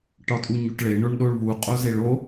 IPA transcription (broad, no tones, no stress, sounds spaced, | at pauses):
ʈ ɒ tʼ u ɲ o ʈ ɭ e ɳ o ɳ ɗ o ɭ β u qʼ o z e ɭ o